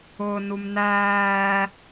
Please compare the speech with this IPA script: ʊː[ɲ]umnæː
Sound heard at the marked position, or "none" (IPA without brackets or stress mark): n